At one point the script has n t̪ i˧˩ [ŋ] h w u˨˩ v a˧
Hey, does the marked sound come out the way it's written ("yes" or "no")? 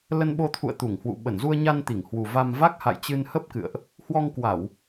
yes